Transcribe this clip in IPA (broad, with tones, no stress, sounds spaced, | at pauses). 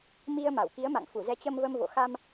m i˧ ə̯ m a˧˩ w k i˨˦ ə̯ m a̰˧˨ ŋ f u˧˩ z ɛ˨˦ t͡ɕ ə˧ m v ə˧ m v o̰˧˨ x a˧ m